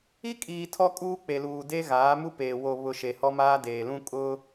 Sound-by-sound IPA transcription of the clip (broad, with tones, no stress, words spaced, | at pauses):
i˦kʼiː˨ tʰɔ˦kʼuː˦k͡pe˨luː˨ de˦ɣaː˨˦mu˦peː˨ wo˨βʊ˨ ʃe˨hɔ˦maː˦ deː˨lũ˦ kʼʊ˦